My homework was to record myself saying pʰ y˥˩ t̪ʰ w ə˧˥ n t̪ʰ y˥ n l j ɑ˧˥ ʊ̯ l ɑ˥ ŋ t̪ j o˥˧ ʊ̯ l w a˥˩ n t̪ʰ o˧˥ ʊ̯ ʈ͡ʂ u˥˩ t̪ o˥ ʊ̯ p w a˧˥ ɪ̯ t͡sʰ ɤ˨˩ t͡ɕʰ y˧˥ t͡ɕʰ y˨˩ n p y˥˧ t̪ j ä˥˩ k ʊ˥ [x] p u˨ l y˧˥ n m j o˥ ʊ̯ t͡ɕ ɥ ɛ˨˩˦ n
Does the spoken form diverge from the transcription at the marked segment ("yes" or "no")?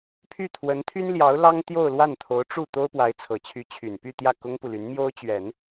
yes